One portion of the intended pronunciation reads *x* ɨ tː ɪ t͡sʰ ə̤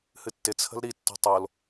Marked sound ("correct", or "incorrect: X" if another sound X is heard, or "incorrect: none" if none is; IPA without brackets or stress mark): incorrect: h